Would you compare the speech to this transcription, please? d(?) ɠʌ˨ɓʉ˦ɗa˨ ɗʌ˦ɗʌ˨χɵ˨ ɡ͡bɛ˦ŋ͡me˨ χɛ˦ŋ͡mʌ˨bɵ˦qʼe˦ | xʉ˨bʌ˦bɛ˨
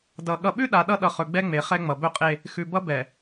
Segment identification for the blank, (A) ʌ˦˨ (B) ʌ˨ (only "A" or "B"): B